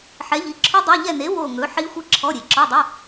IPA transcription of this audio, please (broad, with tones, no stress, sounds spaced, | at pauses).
ħ ɛ˨˥ ʎ i˨˥ ǁʰ ɵ˦˥ dˤ e˧˥˧ ʎ ɛ˦˨ n e˨˥ w o˦˨ ŋ ɵ˨˥ ħ i˦˥ xʷ i˦˥ ǁʰ ɔ˧˥˧ ɾʲ e˨ ǁ ɔ˧˥˧ dˤ ɵ˧˥˧